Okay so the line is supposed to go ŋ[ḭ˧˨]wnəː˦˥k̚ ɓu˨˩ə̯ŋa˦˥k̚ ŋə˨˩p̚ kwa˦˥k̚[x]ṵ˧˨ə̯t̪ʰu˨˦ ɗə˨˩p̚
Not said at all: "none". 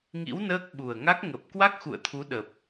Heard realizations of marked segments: ḭ˧˥, x

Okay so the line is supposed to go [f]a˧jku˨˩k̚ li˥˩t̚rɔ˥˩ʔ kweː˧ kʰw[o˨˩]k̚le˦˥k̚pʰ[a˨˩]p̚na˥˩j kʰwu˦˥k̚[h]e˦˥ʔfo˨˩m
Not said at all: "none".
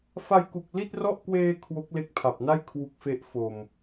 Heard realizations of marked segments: f, o˦˥, a˨˩, f

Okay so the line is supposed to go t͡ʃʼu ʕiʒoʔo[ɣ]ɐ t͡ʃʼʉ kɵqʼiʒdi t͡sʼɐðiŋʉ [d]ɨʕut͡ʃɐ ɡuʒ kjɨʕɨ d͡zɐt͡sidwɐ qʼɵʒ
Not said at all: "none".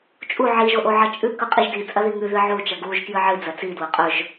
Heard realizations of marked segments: ʕ, ð

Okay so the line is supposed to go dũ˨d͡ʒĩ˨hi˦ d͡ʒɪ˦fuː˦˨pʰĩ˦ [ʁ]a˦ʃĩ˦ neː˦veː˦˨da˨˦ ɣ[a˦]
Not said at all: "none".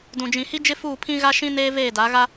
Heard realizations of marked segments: ɣ, a˦

